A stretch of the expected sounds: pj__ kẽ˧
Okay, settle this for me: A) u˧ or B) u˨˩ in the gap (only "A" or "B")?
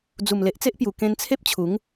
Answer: B